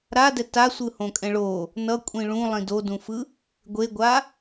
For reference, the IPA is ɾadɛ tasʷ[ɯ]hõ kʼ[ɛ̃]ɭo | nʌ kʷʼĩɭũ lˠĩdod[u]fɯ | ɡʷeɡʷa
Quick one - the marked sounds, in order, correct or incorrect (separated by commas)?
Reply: correct, correct, incorrect